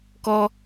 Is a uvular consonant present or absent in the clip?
absent